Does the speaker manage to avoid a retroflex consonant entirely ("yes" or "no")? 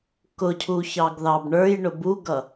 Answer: no